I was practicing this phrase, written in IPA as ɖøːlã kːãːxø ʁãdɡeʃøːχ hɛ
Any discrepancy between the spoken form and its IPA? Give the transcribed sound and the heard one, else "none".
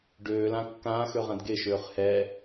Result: none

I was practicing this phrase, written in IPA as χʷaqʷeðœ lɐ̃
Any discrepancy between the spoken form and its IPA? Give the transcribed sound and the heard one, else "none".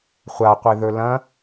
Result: œ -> ɵ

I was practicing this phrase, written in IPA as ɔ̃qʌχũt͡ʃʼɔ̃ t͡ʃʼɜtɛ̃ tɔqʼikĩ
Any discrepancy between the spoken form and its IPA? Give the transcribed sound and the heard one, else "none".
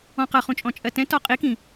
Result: none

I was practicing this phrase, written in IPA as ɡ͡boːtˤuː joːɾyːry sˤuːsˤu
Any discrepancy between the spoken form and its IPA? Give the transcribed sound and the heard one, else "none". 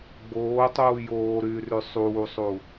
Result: none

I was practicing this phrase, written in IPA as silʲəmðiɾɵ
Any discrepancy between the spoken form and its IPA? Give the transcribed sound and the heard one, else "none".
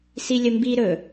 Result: ð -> b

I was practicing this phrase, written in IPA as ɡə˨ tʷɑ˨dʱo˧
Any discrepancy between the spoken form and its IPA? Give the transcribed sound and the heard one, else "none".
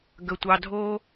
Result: none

